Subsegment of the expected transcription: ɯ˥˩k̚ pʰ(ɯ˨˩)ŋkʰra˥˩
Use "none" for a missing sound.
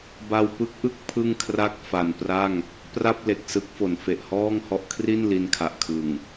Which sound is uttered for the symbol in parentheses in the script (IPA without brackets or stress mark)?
ɯ˥˩